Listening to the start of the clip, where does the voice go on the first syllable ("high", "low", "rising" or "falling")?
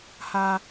high